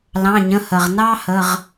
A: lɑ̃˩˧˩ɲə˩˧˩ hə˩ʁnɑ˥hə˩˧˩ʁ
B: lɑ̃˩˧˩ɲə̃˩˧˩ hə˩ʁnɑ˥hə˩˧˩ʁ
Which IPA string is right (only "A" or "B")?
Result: B